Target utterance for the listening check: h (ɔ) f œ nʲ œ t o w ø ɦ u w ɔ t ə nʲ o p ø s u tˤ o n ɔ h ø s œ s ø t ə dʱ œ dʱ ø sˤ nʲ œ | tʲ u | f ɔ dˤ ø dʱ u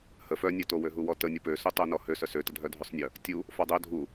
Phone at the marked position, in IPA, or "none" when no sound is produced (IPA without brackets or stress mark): ə